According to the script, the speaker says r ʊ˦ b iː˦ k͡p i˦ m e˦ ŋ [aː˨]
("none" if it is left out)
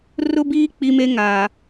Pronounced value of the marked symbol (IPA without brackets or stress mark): aː˨